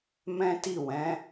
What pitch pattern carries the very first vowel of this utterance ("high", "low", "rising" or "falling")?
high